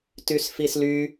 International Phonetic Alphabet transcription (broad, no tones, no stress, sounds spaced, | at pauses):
t y s f i s l y